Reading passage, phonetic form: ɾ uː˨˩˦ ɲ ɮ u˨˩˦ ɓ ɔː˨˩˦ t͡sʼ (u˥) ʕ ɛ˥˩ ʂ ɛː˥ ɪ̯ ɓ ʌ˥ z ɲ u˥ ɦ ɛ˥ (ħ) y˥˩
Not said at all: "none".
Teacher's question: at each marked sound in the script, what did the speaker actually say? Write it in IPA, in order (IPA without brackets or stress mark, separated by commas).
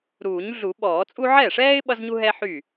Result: u˥, ħ